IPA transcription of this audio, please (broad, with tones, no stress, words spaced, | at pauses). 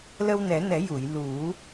lə˧wnɛ˨˩˦nɛ˨˩˦ju˨˩˨j lu˨˩˦